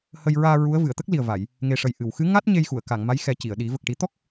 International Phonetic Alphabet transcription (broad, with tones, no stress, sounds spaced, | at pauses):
h ə˧ j ɹ aː˧ ɹ u˧˥ ə̯ v ɨ˨˩˨ ə̯ t̪ ə˦˥ k̚ l i˨˩ ə̯ v a˨˩˨ j | ŋ e˨˩ ʂ ə˨˩ j ʔ ɨ˨˩˨ w x ɨ˧˥ ŋ a˦˥ t̚ ɲ e˧ j x u˨˩˨ ə̯ k a˨˩˨ ŋ m a˧˥ j x ɛ˨˩˦ c i˨˩˨ ə̯ ɗ i˨˩˦ v ə˨˩ k̚ ʈ i˨˩˦ t̪ ɔ˦˥ k̚